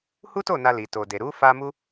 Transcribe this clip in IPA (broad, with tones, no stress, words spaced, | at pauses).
hu˦to˦˨ na˧li˨to˨de˨ ɾu˨˦ fa˧ mu˦